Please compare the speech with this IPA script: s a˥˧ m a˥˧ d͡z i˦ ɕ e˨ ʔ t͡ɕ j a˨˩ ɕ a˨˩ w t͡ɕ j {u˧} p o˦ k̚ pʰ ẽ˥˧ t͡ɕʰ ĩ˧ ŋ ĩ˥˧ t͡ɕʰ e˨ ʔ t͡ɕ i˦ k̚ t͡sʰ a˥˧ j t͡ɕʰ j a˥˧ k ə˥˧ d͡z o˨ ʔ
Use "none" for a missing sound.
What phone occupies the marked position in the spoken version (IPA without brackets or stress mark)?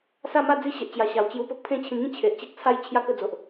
u˧